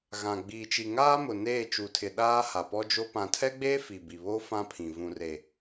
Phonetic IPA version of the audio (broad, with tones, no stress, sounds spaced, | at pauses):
ɣ ã˨ ɡ͡b iː˨ t͡ʃ i˨ ŋ aː˦ m ʊ˨ n eː˦˨ t͡ʃ u˨ tʰ ɪ˨ ɗ aː˦ h a˨ p ɔ˦ d͡ʒ o˦ p ã˨ tʰ ɛ˦ ɡ͡b eː˦ f i˨ b i˨ β o˦ f ã˦ pʰ ĩ˨ v ũ˨ r e˨